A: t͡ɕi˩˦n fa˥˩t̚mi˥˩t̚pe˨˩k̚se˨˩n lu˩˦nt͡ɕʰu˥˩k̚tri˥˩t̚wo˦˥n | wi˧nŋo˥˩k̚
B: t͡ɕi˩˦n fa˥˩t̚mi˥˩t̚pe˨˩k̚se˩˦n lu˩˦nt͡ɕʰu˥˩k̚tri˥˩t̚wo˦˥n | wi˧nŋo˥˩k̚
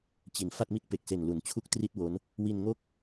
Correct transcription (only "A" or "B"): A